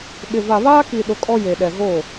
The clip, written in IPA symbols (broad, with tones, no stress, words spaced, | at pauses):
ɓɪ˨ va˨βaː˦ki˨ ɗʊ˨ kʼɔ˦ je˨ɗɛ˨ ɣo˦˨